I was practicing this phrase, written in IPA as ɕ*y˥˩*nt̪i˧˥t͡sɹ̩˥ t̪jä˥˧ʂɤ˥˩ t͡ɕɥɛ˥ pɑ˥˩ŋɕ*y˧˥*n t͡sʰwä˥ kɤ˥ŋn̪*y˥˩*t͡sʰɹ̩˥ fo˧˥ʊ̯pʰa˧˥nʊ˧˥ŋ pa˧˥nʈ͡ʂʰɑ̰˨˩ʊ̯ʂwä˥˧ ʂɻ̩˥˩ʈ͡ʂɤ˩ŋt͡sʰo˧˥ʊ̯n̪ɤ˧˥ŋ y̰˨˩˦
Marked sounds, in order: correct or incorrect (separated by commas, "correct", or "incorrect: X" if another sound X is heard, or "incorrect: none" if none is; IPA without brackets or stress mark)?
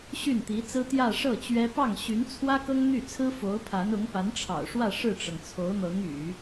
correct, correct, correct